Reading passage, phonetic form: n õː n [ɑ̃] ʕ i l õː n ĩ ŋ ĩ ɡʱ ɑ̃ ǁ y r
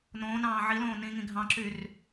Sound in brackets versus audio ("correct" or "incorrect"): incorrect